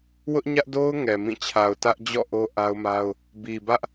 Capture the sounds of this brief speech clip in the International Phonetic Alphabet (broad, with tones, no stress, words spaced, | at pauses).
wʊ˦ʔɲä˦ʔdo˦ʊ̯ ŋɛ˨mĩ˦˨ t͡ɕʰa˨ʊ̯tä˦ʔ d͡ʑɔ̰˦˨ ʔo˦ʔa˦ʊ̯ma˦ʊ̯ | bi˨bä˦ʔ